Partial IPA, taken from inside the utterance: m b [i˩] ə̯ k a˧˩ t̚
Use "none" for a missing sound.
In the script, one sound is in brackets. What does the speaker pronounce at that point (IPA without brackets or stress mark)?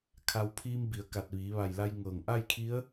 i˩